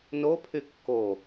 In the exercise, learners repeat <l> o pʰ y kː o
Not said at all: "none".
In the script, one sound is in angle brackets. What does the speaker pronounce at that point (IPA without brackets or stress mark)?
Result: n